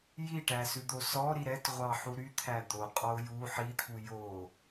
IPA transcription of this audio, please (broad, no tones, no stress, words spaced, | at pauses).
jiʈæsʉd̪o sɔɾi ɾɛtʁʷɑħu ɾyt̪ʰæ d̪oqʼɔʊ̯ ju ħit̪ʰu jo